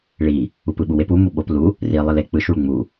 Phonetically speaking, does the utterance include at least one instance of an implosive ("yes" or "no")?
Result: yes